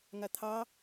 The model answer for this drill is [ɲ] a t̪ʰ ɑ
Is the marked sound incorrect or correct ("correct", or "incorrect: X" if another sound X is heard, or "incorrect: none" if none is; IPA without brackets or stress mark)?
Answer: incorrect: ŋ